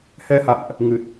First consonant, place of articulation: glottal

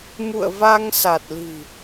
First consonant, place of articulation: labial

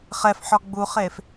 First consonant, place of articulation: uvular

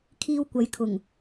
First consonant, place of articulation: velar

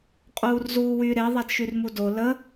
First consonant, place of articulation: uvular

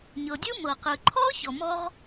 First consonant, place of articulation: palatal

